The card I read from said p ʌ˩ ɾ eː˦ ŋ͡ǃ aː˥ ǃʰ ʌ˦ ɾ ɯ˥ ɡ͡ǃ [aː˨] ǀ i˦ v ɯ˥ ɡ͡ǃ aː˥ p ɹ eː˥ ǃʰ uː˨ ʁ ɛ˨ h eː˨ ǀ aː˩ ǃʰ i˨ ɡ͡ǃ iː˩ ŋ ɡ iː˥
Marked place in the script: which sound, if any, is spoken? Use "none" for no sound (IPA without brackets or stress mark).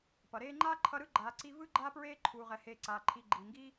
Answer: aː˨